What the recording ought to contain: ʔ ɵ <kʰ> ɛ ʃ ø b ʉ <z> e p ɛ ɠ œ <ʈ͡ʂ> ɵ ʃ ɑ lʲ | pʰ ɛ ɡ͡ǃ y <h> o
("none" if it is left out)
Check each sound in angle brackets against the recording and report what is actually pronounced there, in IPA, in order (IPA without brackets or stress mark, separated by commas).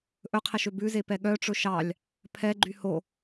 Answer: qʰ, z, ʈ͡ʂ, h